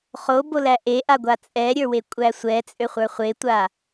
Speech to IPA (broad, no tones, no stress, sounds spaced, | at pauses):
χ o b o l æ ʔ e ʔ a ɡʷ a t͡sʼ ɛ ɾʲ ə˞ w e kʷʼ æ sʷ ɛ t͡sʼ ø χʷ ə˞ χʷ e tʷ a